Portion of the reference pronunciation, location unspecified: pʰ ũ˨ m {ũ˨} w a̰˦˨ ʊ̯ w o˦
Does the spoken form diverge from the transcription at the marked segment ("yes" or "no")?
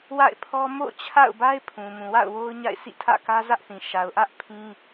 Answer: no